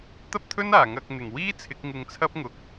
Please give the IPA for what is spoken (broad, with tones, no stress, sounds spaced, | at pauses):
t̪ ɐ˥ p̚ t̪ʰ ɵ˥ n aː˨˩ ŋ ɐ˨ k̚ n̪ ɪ˨˩ ŋ w iː˥ t͡sʰ ɪ˨˥ k̚ ŋ ɪ˧ ŋ t͡sʰ ɐ˥ p̚ ŋ ʊ˨ k̚